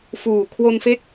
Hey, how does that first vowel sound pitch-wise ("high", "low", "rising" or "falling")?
low